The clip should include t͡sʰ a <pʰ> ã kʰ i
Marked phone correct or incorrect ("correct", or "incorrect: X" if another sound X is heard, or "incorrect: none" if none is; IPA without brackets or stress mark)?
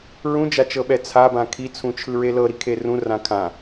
incorrect: b